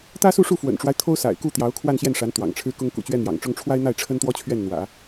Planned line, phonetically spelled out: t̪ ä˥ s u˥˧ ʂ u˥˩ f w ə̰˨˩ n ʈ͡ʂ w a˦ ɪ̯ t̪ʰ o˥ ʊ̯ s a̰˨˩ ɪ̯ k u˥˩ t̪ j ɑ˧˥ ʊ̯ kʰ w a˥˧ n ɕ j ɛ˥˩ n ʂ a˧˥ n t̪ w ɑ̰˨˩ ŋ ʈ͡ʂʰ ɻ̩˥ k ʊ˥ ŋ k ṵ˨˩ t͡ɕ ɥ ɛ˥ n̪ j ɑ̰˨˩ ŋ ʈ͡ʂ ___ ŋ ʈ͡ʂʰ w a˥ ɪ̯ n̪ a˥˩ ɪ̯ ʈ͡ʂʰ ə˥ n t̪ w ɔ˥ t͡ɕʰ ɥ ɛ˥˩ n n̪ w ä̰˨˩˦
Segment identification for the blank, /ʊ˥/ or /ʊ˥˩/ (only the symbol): ʊ˥